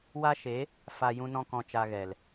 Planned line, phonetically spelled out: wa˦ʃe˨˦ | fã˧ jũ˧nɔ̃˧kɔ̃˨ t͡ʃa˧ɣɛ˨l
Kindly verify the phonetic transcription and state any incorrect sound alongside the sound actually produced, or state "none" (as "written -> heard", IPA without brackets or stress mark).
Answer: ã˧ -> a˧